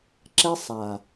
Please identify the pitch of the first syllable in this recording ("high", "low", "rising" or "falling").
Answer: high